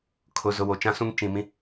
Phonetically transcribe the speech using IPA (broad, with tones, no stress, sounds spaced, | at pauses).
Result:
kʰ ʊ˨ z ʊ˨ w o˨ t͡ʃ ã˦ s ũ˦ ŋ t͡ʃ ĩ˨ m ĩ˦